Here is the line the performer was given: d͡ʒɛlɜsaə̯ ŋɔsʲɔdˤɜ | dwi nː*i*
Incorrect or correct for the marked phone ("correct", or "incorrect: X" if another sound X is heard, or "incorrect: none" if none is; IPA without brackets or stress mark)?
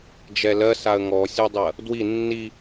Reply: correct